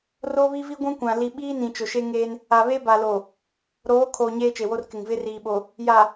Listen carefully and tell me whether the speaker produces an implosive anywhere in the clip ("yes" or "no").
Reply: yes